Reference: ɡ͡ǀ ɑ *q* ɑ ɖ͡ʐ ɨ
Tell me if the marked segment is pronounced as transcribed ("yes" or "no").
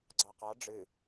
yes